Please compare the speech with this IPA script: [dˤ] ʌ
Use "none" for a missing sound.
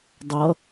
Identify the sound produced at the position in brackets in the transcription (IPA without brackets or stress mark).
dˤ